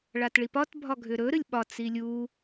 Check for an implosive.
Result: present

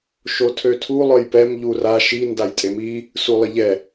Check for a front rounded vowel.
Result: present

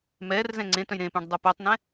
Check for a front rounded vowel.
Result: present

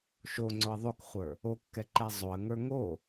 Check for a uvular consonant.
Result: present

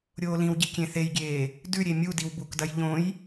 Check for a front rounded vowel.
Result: absent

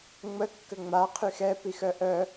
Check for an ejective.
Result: absent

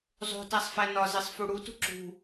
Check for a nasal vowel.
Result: absent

